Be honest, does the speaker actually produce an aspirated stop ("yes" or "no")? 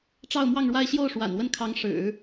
yes